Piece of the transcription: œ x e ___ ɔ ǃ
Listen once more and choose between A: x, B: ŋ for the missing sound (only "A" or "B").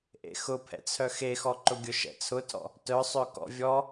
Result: A